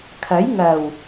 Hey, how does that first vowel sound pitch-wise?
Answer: rising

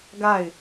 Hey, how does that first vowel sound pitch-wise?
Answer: falling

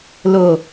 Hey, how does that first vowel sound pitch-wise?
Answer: low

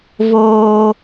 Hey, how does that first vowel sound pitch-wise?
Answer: high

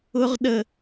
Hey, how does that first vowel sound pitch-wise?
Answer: high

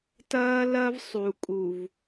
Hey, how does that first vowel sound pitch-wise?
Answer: high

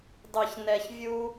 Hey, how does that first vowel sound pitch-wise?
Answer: low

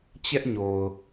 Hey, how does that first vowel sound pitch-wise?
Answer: high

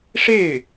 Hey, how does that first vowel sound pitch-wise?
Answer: falling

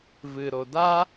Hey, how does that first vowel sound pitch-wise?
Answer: low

